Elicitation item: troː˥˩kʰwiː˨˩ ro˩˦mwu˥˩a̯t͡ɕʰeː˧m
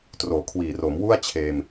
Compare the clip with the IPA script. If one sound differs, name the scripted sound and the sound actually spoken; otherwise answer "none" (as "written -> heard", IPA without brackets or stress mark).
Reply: oː˥˩ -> oː˨˩